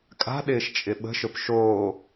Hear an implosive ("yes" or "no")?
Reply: yes